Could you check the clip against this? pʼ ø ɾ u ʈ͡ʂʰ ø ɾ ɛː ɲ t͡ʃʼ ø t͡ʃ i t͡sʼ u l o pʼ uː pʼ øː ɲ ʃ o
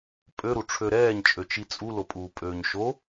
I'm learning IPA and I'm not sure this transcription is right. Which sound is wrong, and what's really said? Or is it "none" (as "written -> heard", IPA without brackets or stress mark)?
none